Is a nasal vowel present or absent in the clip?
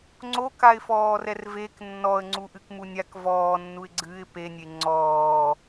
absent